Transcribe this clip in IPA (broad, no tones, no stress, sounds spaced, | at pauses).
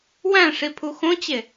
w æ̃ ʂ i pʰ u x õ t͡ɕ e